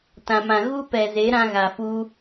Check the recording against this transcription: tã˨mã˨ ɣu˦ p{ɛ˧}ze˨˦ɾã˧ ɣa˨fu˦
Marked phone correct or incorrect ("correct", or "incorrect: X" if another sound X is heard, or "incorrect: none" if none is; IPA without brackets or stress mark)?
incorrect: ɛ˨